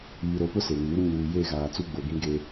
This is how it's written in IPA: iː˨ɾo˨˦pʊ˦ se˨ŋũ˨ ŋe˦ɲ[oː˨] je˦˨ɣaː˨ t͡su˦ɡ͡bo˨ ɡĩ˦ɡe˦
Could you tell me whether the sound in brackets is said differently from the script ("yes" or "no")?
yes